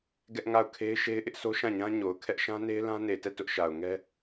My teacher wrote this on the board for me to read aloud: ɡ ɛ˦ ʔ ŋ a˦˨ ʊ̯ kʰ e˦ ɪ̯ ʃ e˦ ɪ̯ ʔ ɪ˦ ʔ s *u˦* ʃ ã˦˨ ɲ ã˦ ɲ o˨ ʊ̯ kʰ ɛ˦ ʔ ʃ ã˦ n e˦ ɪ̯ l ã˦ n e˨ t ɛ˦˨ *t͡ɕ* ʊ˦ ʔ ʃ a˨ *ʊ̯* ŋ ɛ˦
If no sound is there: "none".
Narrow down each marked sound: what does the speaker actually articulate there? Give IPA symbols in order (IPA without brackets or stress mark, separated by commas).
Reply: o˦, t, ʊ̯